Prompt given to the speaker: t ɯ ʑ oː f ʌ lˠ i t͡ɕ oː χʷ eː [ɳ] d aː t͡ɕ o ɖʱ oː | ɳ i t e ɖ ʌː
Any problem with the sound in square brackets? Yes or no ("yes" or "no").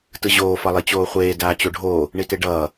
yes